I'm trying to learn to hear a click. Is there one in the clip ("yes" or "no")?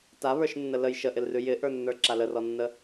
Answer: yes